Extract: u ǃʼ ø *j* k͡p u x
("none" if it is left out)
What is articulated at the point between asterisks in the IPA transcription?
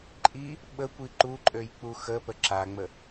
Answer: j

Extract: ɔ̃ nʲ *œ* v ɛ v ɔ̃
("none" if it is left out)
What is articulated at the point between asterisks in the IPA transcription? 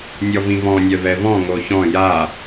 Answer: œ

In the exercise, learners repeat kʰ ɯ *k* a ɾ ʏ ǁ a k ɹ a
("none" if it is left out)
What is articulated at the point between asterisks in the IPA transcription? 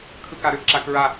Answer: k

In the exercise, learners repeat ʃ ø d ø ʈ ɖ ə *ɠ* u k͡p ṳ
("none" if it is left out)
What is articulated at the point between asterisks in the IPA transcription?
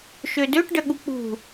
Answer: ɠ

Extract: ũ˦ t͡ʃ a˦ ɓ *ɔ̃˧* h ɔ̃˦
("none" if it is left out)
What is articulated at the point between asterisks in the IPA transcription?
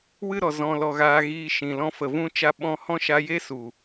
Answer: ɔ̃˧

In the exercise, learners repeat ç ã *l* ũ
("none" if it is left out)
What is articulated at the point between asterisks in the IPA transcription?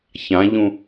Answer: ʎ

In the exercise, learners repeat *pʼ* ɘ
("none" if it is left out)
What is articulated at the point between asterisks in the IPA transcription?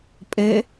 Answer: pʼ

